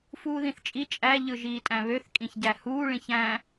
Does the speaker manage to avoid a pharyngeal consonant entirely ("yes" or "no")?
yes